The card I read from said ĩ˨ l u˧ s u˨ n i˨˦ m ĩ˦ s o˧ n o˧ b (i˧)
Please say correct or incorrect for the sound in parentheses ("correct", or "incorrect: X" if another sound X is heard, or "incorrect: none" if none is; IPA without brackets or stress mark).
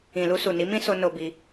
correct